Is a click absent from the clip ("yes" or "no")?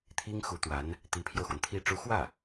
yes